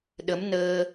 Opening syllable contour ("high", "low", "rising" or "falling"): rising